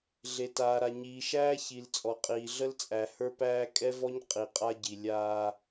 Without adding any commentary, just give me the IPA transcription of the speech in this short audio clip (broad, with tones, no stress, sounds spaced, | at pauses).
ɮ e˨ t aː˨ ɾ a˨ ɲ iː˨ ʃ æː˦ ç i˨ l t͡sʼ ɔ˨ qʼ iː˨ ɮ ə˦ l t͡sʼ æ˨ h ə˞˦ p æː˦ kʼ ɛ˦ v ɔ˦ ɲ qʼ i˨ qʼ a˦ ɟ i˨ lʲ aː˦